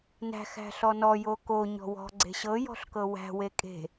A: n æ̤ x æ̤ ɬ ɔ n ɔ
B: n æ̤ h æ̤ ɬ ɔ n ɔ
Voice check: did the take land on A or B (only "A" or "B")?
A